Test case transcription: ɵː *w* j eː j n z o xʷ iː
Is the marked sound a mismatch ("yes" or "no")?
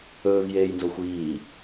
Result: yes